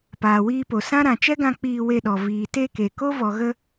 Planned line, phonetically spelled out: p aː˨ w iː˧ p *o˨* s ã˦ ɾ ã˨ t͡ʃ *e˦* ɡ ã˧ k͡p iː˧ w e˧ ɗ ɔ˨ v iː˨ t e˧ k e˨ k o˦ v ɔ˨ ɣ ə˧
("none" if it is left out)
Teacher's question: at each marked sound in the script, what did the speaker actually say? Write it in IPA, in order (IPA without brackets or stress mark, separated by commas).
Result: o˨, ɛ˦